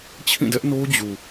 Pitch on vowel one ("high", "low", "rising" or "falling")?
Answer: falling